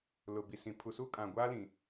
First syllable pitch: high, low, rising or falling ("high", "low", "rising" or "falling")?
low